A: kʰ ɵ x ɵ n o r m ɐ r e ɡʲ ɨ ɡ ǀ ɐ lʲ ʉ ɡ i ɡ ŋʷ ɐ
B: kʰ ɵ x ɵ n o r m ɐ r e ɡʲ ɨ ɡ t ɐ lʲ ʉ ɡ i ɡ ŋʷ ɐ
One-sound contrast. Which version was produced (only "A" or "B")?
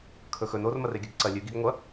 A